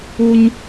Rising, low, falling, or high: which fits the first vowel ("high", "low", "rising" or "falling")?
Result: high